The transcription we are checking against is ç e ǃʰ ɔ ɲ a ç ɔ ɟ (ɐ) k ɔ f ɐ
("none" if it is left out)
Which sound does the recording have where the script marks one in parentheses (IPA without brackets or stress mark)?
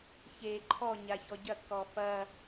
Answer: ɐ